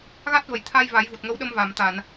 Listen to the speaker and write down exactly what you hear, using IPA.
ɣ a˦˥ t̚ v ə˨˩ j t̪ʰ a˧ j v a˨˩˦ j v u˨˩ t̚ ŋ ə˧˥ w ɗ ə˧ m v a˨˩˨ m t̪ a˨˩˨ n

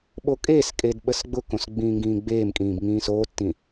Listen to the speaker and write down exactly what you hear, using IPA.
ɓ o kʼ eː s kʼ e d ɓ ə s ɡ͡b ʊ k õ s ɡ͡b ĩː ŋ ɡ ĩː ɡ͡b eː m kʼ ĩː b ŋ ĩː s oː tː ĩ

